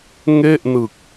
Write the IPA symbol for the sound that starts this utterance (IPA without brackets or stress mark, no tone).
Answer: ŋ